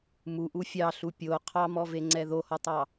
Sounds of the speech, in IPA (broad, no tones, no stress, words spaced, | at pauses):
muʔu fʲɑɬu pʲo qʰɑmɔveŋ͡ǀɛ ðohɔtˤɑ